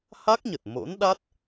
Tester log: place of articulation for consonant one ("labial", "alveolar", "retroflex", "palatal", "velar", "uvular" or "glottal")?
glottal